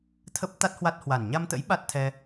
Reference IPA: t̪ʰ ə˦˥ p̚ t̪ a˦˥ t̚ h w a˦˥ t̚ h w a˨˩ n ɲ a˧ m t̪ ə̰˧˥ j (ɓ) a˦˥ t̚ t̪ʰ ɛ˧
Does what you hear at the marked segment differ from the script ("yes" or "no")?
no